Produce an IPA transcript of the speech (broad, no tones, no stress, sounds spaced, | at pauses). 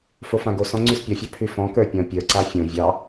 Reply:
f o f ã ɡ o s ɔ̃ ŋ͡ǀ ʉ s pʲ ɔ fʲ ɑ pʰ ʉ f ɔ̃ k ə˞ pʲ ɔ̃ pʲ ə˞ ǀ a fʲ õ vʲ ɑ